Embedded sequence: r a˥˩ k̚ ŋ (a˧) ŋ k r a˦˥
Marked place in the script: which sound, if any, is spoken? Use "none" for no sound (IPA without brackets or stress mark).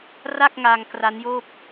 a˧